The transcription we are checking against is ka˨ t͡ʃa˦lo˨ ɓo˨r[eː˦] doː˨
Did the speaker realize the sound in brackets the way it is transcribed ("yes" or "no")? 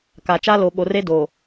no